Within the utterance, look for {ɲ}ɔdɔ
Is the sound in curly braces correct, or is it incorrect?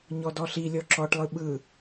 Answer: correct